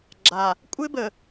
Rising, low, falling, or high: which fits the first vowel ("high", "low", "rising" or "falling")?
low